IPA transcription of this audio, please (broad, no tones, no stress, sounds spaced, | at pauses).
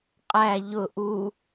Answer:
qʼ æ ʎ ʊ ʔ u